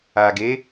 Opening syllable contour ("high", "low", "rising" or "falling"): low